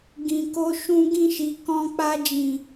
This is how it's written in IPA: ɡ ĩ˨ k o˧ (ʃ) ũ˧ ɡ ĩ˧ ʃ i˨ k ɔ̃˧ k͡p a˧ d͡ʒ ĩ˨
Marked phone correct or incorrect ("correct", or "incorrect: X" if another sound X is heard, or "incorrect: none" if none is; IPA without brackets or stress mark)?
correct